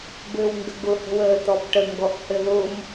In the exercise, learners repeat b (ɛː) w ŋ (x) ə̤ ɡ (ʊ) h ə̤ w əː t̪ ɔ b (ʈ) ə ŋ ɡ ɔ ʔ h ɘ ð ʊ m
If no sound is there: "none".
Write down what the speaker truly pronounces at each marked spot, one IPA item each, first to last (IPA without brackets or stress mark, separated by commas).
ɘː, ɡ, ʊ, ʈ